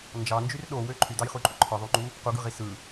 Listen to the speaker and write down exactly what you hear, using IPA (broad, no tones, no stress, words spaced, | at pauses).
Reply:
nd͡ʒɑnd͡ʒyr ɗowø ǃʰydɑjχuǃʼu ǃʰɯðˤuŋ͡ǃu | quɡɯʁi sɯ